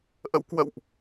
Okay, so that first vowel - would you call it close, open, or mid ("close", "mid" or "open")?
mid